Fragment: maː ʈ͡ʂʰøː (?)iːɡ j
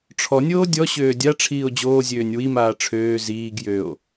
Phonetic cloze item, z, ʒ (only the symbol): z